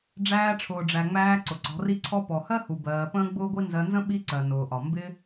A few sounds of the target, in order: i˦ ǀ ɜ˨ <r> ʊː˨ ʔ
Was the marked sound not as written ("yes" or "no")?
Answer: yes